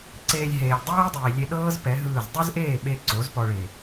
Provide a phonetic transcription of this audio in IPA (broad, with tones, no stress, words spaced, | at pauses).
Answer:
ǀeː˧lʲɦeː˨lʲ dˤɛː˦dˤiː˨lʲe˧ ɗɤː˦z pɛ˨˦ɦɯː˦˨z dˤu˦zʔeː˦˨ɓe˧ ǀo˨˦zpɔ˧ ɭe˨